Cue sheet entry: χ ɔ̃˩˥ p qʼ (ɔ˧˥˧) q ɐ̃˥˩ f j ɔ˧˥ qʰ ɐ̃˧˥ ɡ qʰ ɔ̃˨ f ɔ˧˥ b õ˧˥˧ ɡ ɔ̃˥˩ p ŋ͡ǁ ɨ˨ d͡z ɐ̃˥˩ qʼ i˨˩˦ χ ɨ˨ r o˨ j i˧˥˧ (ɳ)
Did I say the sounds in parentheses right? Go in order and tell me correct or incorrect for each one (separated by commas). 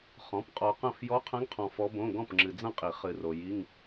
incorrect, incorrect